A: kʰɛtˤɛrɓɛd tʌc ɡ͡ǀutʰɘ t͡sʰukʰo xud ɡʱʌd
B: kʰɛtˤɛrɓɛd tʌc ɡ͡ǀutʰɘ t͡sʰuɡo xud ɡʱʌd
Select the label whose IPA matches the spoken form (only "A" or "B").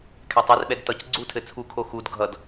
A